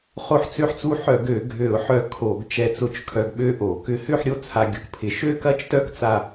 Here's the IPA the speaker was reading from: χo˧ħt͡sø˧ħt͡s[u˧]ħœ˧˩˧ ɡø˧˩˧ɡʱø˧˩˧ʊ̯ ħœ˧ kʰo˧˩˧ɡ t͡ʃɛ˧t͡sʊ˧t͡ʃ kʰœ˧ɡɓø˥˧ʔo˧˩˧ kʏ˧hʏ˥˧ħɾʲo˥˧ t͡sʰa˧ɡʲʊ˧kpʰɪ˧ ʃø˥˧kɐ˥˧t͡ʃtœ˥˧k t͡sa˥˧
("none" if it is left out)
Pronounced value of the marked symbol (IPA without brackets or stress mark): u˧